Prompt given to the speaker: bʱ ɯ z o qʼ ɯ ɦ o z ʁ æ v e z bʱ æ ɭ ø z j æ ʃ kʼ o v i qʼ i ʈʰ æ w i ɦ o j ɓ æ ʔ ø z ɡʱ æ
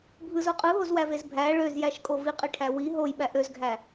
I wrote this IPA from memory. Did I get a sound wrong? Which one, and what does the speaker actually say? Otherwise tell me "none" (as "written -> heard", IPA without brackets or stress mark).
ʁ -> w